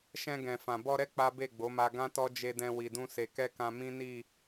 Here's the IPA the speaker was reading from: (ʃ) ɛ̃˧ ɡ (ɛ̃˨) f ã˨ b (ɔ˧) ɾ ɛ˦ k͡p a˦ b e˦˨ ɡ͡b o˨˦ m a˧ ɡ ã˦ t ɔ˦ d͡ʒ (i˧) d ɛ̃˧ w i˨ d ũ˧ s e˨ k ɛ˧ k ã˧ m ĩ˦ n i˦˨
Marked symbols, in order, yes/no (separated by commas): yes, yes, yes, no